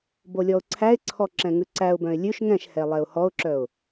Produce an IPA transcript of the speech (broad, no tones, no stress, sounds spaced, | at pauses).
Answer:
b o lʲ ɔ ʊ̯ ǀʰ æ ɪ̯ ǀʰ ɔ ǁ ɛ̃ ŋ ʉ ǀ æ ʊ̯ b œ̃ ɪ̯ lʲ ʉ ʃ ŋ ɛ̃ ʃ h ɛ lˠ ɛ ʊ̯ h ɔ ʊ̯ ǁ œ ʊ̯